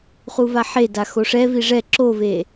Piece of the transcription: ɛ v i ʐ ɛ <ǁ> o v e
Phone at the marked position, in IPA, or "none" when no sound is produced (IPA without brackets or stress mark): ǁ